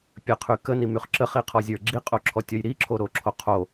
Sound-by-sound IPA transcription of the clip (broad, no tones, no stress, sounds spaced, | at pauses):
pʲ ə qʰ y k ə n i m y χ ǁ ə χ i qʰ ɔ zʲ ə˞ ɡ͡ǁ i qʼ o ǁʰ ɔ tʲ ɔ j ɾ i ǁʰ o ɾ o ǁʰ o qʰ o